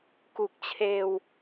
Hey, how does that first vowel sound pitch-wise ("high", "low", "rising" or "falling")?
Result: low